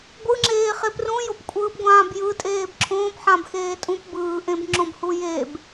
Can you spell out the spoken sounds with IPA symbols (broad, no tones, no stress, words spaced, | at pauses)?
ɡʷɯŋ͡ǁeː χeprũ jopkʷʼɯːpɡʷãːbjɯ tʼeːbǁʰõːp ħãbxeːtʼũp bɯːʔẽbŋ͡ǁõbhu jeb